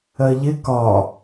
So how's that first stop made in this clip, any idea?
plain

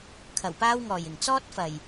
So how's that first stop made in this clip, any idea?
aspirated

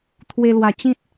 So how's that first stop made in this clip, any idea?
aspirated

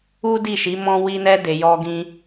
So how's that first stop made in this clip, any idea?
plain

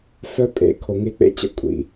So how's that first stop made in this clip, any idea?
ejective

